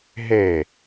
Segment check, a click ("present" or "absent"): absent